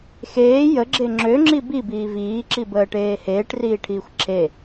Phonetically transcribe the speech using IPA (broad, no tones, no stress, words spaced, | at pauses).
xeː jəɡ͡ǁe ŋ͡ǁøŋ͡ǁi bibiː viːǁibəːʈeː heːʈriːʈʰiːxʷ ǁʰe